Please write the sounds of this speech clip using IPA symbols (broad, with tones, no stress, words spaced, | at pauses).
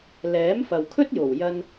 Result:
lɛː˨˥mfɐ˨wkʰɵ˥t̚jo˨˩w jɐ˧n